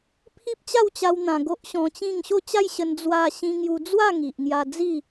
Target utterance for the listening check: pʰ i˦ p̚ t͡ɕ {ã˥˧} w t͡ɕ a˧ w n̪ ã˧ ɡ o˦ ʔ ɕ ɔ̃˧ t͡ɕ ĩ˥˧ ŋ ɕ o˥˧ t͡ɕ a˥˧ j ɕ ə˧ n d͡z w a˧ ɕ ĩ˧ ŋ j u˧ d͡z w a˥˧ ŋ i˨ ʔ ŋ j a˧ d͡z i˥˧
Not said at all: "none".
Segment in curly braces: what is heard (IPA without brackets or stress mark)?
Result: a˥˧